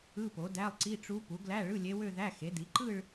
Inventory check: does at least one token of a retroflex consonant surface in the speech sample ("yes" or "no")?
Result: yes